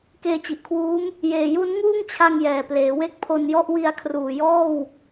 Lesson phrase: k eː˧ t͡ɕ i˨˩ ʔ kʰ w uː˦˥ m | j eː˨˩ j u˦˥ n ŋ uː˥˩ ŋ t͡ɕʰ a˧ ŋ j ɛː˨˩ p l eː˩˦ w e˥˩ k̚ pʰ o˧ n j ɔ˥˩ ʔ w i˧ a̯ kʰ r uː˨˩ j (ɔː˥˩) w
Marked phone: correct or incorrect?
correct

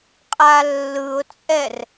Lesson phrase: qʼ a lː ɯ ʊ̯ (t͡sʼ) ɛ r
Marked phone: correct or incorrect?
correct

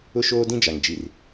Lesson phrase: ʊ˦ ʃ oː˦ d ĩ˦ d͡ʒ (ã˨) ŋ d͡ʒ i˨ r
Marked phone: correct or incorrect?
incorrect: a˨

